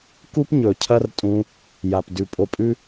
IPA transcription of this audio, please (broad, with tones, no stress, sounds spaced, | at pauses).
k u˦ p ɲ ɵ˨ cʰ ɐ˦ r tʼ ũ˧ | j a˨ p d ʉ˨ pʼ o˧ pʼ ʉ˦